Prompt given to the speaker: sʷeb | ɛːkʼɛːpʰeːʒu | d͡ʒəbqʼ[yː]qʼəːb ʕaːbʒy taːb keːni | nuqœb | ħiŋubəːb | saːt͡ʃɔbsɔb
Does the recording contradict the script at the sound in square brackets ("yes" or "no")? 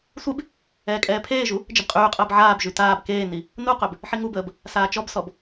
no